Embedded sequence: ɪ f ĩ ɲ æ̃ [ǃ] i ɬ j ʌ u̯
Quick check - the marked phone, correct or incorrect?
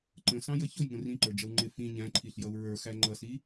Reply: incorrect